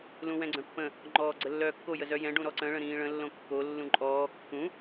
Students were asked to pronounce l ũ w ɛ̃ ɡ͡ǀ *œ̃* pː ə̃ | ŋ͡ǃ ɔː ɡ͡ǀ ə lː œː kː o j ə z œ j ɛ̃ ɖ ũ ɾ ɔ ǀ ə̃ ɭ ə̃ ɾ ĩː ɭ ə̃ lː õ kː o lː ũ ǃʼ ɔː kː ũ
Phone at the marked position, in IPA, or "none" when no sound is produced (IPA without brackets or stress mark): œ̃